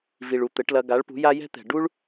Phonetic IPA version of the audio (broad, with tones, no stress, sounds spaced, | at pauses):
v i˨ ɭ u˨ t̪ ɘ˨˦ ʈ l ɐ˧ ɡ a˨˦ ɭ p ṳ˨˦ j a˦ j ɛ̤˦ t̪ ɛ̤˨ ɖ u˦ ɭ